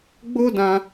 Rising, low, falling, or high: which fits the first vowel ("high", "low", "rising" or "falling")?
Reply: high